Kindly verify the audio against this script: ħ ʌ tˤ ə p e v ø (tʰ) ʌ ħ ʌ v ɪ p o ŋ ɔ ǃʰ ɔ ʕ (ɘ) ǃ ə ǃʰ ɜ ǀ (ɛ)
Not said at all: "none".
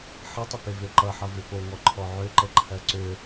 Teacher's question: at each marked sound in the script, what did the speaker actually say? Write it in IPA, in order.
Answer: ǃ, ø, ø

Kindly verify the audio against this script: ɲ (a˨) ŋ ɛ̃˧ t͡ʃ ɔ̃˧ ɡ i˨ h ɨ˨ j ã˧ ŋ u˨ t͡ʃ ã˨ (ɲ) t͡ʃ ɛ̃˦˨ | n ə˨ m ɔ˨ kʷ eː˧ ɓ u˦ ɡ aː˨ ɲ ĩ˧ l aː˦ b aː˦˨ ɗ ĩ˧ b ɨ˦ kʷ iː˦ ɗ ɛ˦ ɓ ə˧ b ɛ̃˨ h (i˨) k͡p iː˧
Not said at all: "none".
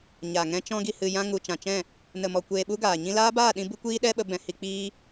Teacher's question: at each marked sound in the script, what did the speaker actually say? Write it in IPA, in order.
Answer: a˨, none, i˨

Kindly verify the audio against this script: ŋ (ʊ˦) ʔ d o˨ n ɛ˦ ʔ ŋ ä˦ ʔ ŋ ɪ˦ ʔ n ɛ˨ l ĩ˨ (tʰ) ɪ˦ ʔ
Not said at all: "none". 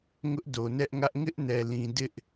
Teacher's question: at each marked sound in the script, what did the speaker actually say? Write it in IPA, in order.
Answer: ʊ˦, d

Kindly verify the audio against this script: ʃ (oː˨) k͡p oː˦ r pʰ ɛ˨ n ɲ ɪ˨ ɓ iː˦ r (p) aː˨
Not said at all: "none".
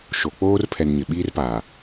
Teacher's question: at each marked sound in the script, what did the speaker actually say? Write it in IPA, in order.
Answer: o˨, p

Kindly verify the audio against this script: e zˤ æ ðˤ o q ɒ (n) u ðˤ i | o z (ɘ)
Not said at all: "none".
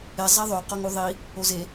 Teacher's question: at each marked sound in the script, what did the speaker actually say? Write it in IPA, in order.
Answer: ŋ, e

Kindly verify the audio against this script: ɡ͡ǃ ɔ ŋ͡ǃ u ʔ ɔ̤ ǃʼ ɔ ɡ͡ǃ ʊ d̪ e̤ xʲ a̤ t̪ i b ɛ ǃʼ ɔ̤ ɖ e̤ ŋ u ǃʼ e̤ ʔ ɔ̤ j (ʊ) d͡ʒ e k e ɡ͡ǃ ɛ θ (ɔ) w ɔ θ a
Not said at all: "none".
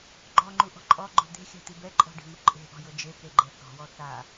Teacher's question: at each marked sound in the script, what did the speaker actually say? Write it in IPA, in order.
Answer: ʊ, ɔ̤

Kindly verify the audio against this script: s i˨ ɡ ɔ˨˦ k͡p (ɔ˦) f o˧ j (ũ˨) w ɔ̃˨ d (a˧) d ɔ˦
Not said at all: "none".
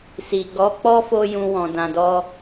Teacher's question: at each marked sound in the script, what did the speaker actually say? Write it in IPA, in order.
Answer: ɔ˦, ũ˧, ã˧

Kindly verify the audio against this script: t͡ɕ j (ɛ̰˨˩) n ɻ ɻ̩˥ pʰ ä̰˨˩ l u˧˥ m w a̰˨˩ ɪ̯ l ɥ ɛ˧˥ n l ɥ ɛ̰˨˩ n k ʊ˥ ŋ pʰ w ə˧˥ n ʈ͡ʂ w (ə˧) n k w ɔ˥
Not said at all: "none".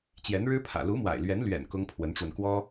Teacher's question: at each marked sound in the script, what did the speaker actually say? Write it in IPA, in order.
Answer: ɛ˧˥, ə˧

